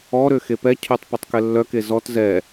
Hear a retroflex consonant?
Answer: no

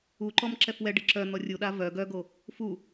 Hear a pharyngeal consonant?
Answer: no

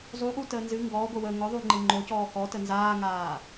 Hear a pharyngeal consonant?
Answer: no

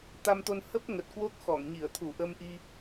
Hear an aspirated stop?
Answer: yes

